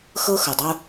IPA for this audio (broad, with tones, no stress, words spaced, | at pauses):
xɤ˦xɤ˨dˤo˦